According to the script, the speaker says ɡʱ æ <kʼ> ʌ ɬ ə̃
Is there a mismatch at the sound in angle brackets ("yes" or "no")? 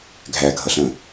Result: yes